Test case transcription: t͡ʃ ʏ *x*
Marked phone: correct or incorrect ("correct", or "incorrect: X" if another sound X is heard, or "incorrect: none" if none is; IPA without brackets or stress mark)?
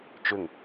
incorrect: ŋ